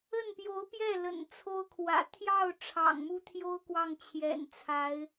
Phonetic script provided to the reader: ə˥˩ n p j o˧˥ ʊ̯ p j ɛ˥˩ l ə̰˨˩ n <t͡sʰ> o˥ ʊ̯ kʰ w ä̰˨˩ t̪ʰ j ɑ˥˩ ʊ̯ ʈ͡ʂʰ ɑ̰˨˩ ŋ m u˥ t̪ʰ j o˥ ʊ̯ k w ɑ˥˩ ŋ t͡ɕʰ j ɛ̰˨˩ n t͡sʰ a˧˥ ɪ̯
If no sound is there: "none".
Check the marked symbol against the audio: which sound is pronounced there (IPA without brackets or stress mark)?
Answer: t͡sʰ